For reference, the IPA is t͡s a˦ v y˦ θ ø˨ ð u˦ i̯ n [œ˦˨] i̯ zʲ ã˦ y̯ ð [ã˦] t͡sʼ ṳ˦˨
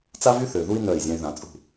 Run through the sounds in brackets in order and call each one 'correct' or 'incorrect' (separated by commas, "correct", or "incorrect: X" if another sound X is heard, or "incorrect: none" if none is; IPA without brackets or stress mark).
correct, incorrect: ã˨˦